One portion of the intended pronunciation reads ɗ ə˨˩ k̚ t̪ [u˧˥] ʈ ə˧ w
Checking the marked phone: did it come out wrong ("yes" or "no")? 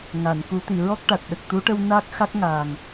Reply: no